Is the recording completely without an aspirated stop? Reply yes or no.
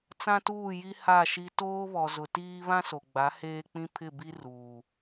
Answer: no